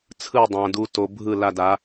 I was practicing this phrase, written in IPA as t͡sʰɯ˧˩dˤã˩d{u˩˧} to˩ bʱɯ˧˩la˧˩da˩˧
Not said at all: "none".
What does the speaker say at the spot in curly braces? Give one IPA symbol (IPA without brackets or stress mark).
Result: u˩˧